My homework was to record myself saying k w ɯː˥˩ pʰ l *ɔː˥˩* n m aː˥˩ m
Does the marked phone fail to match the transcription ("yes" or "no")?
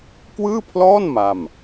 no